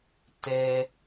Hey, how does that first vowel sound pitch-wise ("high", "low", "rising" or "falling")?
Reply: high